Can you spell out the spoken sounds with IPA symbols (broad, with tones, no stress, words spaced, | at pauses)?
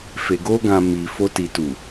fe˨ɡo˧ɡã˨ mi˨fo˧ ti˨tu˨